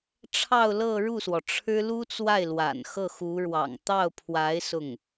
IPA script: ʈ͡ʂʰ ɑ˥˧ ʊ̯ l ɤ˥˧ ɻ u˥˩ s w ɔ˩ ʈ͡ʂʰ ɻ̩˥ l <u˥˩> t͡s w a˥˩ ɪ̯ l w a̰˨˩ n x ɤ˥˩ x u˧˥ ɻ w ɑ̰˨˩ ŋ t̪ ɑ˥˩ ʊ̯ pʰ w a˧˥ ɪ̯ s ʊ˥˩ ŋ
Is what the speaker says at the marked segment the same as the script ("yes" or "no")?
no